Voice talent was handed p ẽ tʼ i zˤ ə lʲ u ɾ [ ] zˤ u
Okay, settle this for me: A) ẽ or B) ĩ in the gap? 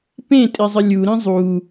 B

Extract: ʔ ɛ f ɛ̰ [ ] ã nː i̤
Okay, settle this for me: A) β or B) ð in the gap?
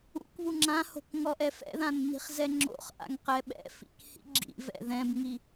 B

